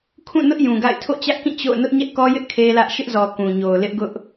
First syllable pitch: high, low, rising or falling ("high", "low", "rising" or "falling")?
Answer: falling